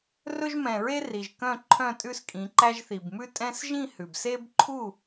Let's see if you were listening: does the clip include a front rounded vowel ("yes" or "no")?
yes